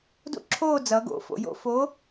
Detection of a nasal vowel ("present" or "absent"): absent